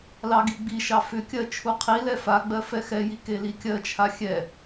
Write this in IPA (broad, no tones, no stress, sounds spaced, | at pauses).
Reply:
l ɑ ɡ i ɡ͡b i ʃ ɑ f ʏ kʲ ɜ t͡ʃʰ u qʰ i l ɛ f a ɡ͡b ɜ f ɛ x ɛ j i k e l i kʲ ɜ t͡ʃʰ a xʲ ɛ